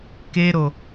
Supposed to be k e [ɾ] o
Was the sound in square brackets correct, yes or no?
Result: yes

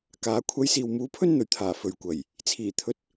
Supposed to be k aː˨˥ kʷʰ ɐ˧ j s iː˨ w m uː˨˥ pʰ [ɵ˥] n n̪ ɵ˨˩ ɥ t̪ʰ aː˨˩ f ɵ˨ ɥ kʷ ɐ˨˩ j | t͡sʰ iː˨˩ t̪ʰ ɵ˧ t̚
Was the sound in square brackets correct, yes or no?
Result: yes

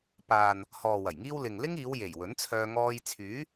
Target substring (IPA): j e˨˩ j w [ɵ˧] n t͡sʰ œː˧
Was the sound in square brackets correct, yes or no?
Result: no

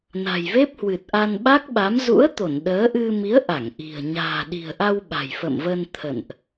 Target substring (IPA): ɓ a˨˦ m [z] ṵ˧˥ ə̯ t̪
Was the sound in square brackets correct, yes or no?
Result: yes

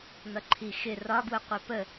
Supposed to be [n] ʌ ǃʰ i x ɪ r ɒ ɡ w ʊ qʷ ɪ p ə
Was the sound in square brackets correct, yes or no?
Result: yes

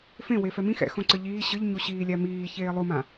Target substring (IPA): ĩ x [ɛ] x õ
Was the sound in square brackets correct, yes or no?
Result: no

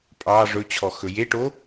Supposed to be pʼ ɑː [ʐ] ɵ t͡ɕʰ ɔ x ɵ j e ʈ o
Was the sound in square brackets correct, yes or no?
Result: yes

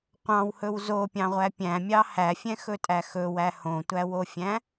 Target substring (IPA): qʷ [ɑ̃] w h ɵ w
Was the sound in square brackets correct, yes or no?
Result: yes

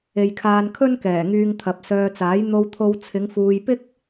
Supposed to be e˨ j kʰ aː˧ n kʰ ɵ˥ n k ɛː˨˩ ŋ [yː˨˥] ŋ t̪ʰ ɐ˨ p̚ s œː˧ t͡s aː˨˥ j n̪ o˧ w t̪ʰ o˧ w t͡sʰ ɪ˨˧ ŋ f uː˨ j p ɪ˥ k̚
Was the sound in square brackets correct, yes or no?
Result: no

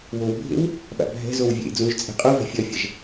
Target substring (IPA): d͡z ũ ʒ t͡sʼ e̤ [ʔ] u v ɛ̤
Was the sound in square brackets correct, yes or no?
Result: no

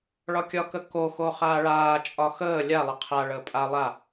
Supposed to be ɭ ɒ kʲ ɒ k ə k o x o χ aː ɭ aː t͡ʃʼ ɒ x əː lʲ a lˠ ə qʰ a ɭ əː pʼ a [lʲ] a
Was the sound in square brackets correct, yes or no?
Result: no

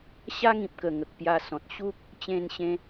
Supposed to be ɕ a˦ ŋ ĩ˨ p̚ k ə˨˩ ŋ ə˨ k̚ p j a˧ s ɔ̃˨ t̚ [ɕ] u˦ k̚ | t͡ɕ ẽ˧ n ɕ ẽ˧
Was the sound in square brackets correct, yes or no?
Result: yes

